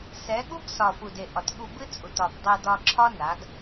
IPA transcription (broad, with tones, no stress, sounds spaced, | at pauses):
s ɛ˨˦ ɠ u˦ ɡ s ɒ˨ f u˨ d e˨ ʔ ɒ˨ t ɠ u˧ b ɨ˦ t͡sʼ u˨ t ɒ˨ b dˤ e˧ d ɒ˧ ǁʰ ɒ˦ n a˨˦ ɡ